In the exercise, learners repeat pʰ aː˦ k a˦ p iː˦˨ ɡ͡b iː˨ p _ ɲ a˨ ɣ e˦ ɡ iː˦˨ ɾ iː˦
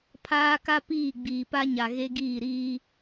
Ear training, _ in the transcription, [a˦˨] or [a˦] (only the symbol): a˦